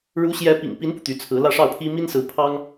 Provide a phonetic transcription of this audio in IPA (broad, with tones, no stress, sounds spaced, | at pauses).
ɻ u˧˥ ɕ j ɛ˧˥ p ḭ˨˩ ŋ p i˧˥ n p u˧ t̪ y˧˥ t͡sʰ ɹ̩˧˥ l ä˥˧ ʂ ɑ˥˩ ʊ̯ pʰ i˥ m i˥ n s ɹ̩˧˥ pʰ ɑ˥ ŋ